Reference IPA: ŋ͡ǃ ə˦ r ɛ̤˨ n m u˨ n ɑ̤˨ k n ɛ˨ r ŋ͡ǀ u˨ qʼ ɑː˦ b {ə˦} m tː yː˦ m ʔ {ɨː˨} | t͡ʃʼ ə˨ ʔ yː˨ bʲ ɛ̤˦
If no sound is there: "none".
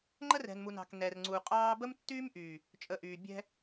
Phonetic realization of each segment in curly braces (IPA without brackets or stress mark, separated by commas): ə˦, yː˨